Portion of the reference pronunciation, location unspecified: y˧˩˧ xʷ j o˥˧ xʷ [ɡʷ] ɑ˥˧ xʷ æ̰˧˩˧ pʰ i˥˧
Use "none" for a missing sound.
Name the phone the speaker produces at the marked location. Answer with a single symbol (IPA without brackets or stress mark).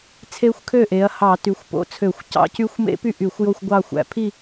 ɡʷ